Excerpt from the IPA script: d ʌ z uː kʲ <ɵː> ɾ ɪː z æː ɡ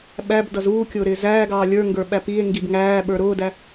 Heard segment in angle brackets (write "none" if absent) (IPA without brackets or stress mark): ʊː